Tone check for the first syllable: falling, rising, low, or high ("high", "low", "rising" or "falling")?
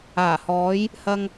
low